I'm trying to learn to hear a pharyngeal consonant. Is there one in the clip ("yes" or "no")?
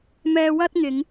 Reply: no